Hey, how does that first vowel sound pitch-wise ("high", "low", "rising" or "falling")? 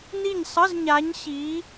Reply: falling